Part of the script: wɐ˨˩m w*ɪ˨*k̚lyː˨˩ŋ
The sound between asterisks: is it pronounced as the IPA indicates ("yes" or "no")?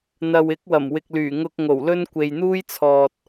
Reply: yes